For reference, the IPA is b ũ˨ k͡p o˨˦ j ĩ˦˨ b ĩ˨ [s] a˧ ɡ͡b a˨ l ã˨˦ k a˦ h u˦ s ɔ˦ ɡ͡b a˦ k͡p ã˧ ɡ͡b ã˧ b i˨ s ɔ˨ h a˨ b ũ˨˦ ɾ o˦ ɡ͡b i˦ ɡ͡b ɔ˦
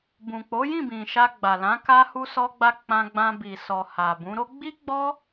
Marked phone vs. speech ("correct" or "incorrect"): incorrect